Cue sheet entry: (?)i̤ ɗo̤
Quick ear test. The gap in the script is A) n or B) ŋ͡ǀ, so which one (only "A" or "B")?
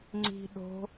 B